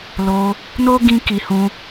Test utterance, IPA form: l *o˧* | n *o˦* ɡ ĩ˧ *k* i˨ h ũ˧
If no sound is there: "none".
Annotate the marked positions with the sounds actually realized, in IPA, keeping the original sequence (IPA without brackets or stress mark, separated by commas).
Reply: o˧, o˦, k